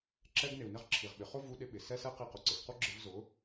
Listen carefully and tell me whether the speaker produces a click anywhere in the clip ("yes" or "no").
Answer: yes